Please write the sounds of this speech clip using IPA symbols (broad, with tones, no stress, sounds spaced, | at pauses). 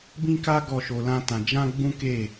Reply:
b ĩ˦ k a˦ ɡ ɔ˦˨ ʃ o˧ l ã˦ t ã˧ d͡ʒ ã˦ ɡ͡b ũ˦ k e˦˨